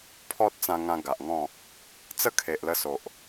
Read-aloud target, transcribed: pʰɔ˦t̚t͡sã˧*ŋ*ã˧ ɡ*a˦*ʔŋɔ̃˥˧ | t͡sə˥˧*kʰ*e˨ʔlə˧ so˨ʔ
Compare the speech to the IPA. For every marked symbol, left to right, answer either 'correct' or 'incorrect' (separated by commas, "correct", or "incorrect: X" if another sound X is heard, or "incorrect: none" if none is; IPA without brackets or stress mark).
correct, incorrect: a˨, correct